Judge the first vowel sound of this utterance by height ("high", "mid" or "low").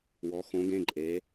mid